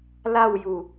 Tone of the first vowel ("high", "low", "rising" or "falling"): falling